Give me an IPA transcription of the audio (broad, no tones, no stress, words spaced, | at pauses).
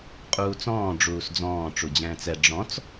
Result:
qʼuːt͡sɔ̃ː ɖ͡ʐuːsd͡zɔ̃ː ʈ͡ʂud͡ʑɛ̃ːt͡sɛ ɖ͡ʐɔ̃t͡s